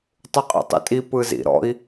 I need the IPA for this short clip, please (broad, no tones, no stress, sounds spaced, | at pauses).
tˤ u qʼ ḭ tˤ ḭ tʼ i p ɯ z ḭ ɾ ɔ̰ i̯